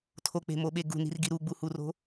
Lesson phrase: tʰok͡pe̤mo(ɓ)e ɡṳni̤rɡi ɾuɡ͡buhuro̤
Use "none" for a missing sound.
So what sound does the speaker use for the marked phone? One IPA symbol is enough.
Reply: ɓ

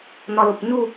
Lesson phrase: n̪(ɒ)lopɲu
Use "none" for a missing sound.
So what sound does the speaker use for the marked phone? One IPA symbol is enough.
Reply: ɒ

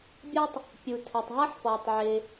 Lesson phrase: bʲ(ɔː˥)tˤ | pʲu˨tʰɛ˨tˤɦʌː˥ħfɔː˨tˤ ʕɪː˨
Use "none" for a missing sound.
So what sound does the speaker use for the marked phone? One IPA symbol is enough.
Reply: ɔ˥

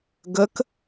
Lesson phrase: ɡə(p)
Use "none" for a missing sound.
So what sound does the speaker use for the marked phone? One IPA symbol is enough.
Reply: k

